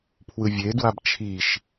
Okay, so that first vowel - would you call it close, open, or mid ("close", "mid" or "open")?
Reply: close